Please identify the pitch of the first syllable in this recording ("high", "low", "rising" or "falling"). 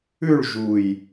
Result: falling